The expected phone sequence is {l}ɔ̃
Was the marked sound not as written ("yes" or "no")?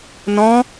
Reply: yes